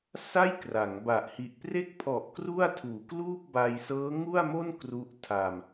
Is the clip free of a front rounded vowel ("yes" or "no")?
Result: yes